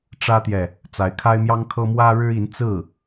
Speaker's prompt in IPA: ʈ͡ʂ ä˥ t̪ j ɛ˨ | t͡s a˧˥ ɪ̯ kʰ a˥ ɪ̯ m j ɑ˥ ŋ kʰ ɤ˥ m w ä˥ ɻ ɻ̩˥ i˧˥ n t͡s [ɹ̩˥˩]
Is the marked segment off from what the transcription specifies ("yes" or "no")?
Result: no